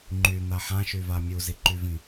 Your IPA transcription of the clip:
ŋ͡ǃ y n̪ a ħ ã ʃ y v a mʲ u z i ǃ y v ĩ

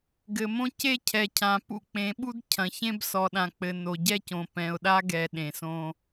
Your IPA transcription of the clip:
ɡ ɘ˨ m õ˦ c e˦ cʰ ɛ˨ cʰ ã˨ p ṵ˦ k͡p ẽ˨˦ ɓ u˦ d cʰ ɐ̃˨ ç ẽ˦ b s ɔ˨ ɗ ã˨ k͡p ɘ˨ n o˨ ɟ ɛ˦ c õ˨ p ɛ̃˨ ʊ̯ ɗ a˦ ɡ ɛ˨ ɗ ẽ˨ s õ˦

